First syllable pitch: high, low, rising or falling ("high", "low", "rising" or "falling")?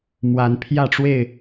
rising